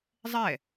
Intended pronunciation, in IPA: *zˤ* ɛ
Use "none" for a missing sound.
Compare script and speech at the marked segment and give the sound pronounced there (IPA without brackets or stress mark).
zˤ